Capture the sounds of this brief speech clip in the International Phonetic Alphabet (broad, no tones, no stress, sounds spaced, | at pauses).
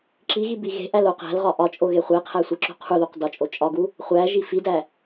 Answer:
ǁ i ɣ i b i ɣ e̤ ʔ æ l o q æ̤ l ʁ ɒ ʔ ɒ t͡ʃʼ o ɣ e χʷ e qʰ æ sʷ i ǁ ṳ qʰ u ð u q d ɒ t͡ʃʼ o t͡ʃʼ ɒ ɡ u | χʷ æ ʒ i f i d æ